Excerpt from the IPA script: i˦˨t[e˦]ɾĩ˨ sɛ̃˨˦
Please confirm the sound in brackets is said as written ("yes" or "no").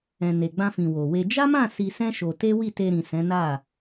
no